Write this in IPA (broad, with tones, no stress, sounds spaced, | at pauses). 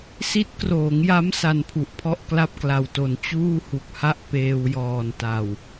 s i˦˥ t̚ k r oː˩˦ ŋ j a˦˥ m s a˧ n pʰ u˨˩ ʔ pʰ ɔ˥˩ ʔ k l a˥˩ p̚ k l a˨˩ w t o˩˦ n t͡ɕ uː˥˩ h u˨˩ k̚ h a˥˩ ʔ p eː˧ w j ɔː˨˩ n t a˨˩ w